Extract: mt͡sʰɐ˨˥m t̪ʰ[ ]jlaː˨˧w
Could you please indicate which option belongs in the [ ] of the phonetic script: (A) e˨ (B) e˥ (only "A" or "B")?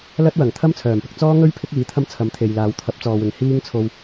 A